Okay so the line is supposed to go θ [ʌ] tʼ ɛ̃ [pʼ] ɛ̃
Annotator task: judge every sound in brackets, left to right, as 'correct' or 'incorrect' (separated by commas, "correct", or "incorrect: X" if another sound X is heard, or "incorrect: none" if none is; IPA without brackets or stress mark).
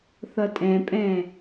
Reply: correct, correct